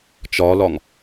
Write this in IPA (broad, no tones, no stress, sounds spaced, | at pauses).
t͡ʃ ɒ l ɒ ŋ